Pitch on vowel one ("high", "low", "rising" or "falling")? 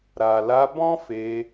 low